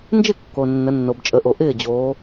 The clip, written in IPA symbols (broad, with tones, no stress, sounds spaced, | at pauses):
n d͡ʒ ɪ˥˩ kː o˩ nː ə˩˧ nː o˩ b t͡ʃʼ ə˩˧ ʔ o˩ ʔ ɪː˥˩ d͡ʑ oː˩˧